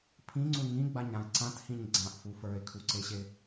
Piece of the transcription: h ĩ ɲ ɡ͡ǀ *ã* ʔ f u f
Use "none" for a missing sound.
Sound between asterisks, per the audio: ã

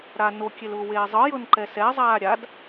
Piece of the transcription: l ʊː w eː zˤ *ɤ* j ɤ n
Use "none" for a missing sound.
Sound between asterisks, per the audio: ɤ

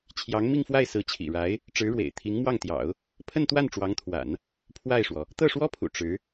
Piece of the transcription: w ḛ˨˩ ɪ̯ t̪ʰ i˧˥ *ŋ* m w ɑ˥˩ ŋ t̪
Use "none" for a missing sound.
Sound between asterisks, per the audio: ŋ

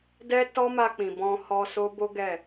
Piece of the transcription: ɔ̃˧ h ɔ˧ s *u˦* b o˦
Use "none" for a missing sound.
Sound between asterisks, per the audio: o˦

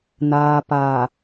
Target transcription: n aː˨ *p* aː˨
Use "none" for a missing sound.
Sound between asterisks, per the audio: p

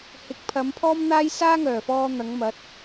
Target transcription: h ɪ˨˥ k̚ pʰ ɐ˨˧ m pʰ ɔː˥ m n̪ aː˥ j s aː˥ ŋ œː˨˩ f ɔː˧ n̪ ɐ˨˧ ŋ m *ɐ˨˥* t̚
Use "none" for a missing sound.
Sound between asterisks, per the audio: ɐ˨˥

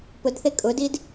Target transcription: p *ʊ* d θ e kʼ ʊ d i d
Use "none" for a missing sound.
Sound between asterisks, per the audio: ʊ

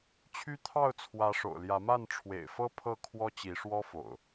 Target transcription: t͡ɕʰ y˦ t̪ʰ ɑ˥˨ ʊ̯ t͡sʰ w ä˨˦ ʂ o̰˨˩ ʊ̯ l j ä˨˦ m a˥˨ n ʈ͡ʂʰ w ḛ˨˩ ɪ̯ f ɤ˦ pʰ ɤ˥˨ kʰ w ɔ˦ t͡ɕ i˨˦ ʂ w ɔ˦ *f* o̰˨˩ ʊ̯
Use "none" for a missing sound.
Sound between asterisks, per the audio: f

